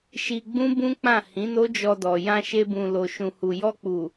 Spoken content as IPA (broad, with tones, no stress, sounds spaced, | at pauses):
ʃ i˧ ɡ͡b ũ˦ b ũ˦ k͡p ã˦˨ h ĩ˨˦ n o˦ d͡ʒ ɔ˧ d ɔ˨ j ã˧ ʃ e˧ b ũ˨ l o˨ ʃ ũ˨ h u˨ j ɔ˧ k͡p u˨